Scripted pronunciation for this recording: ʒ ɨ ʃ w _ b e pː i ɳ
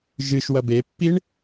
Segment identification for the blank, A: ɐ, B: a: A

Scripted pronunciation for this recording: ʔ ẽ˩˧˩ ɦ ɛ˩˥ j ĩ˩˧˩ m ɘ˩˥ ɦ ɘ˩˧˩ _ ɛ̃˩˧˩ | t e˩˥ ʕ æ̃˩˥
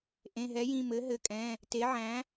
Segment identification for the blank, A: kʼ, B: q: A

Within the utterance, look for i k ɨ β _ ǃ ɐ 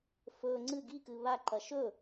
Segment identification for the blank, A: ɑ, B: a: B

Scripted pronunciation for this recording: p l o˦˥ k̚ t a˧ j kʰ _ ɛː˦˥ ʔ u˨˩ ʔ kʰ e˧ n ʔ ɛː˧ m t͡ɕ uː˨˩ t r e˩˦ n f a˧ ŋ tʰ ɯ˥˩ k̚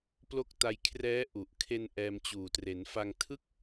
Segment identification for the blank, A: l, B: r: B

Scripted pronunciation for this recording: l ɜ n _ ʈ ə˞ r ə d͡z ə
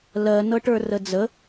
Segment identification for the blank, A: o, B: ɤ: B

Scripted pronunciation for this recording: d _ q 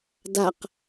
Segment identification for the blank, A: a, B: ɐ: A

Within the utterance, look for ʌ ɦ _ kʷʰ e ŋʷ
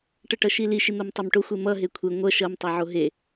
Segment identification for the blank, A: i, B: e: B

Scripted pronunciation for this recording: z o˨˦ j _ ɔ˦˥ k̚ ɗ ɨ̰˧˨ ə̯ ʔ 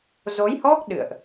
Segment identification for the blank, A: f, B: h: B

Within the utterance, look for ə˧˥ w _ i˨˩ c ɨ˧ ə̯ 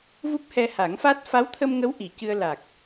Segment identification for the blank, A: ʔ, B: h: A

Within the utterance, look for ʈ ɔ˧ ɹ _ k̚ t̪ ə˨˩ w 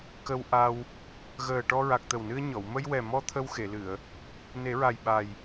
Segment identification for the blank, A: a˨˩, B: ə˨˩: A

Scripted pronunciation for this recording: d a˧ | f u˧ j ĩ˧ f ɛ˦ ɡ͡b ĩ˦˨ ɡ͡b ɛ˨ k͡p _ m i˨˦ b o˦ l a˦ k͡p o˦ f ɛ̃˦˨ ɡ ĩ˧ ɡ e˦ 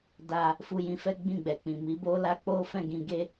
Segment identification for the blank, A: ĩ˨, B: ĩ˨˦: A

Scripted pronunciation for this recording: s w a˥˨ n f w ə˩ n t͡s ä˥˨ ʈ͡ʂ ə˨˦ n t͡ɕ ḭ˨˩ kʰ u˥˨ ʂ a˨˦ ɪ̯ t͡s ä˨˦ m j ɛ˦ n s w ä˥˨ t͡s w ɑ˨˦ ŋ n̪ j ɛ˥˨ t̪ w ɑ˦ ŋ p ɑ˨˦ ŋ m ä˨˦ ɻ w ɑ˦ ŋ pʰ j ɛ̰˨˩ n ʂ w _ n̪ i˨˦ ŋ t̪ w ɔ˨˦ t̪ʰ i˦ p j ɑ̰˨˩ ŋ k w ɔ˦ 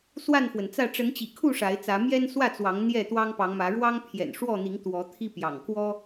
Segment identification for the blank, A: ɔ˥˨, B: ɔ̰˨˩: A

